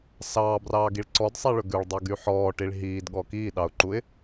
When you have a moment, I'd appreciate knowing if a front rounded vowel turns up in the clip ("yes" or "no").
yes